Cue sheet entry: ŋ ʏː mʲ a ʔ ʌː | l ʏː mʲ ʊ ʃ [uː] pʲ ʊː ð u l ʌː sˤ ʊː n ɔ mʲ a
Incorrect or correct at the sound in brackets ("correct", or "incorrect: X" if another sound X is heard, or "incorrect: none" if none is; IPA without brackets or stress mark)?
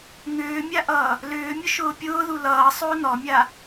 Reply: incorrect: ʊː